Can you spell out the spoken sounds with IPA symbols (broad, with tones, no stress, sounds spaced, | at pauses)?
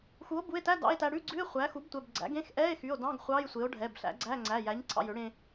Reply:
x u˩˥ o̯ b u˩˧˩ e̯ t æ˧˥˧ d ɑ̰˧˥˧ e̯ t æ˧ ɽ ʉ˧˥˧ ɡ͡ǀ ʉ˧˥˧ e̯ χʷ æ˩˥ x u˩˥ b tʷ ɛ˩˧˩ b ɡ͡ǀ æ̰˩˥ ɡ ẽ˧˥˧ x ʔ ɛ˧˥˧ e̯ x y˩˧˩ o̯ d ɑ̃˧˥˧ ɡ χʷ ɑ˧˥˧ j sʷ e˩˥ o̯ ɖʱ ɛ˩˧˩ b ɬ æ̰˩˥ ɡ͡ǀ æ˧˥˧ ŋ͡ǀ æ˩˧˩ j æ˩˥ ɲ ǀʰ ɑ̰˧ j ø˩˥ ɽ ẽ˧